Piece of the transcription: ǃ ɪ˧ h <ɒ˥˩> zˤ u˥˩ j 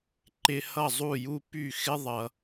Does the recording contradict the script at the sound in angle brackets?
yes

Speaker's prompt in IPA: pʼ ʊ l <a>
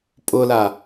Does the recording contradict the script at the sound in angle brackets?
no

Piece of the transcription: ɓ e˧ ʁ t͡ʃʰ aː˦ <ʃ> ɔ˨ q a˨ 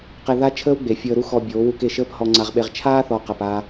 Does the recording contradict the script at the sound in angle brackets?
yes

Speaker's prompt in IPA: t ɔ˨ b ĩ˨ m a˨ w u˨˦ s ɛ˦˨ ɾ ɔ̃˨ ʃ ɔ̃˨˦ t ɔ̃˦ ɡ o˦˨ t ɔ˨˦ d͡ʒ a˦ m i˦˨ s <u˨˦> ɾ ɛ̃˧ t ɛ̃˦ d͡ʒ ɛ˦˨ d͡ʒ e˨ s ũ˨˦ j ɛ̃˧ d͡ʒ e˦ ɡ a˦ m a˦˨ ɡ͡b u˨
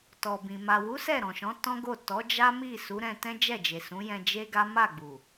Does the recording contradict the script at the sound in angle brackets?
no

